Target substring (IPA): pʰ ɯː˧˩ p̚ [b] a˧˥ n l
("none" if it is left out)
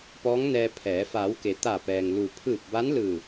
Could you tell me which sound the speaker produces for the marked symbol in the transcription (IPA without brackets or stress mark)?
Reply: b